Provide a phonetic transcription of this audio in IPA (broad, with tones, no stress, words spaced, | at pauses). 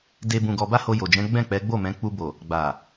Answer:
de˧ bũ˨ɡɔ˨ba˧ ho˧jo˨d͡ʒɛ̃˨˦ ɡ͡bɛ̃˦˨k͡pɛ˨˦ ɡ͡bo˦˨mɛ̃˨˦ k͡pu˧bo˨ | ɡ͡ba˨